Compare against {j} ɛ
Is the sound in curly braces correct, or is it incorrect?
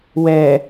incorrect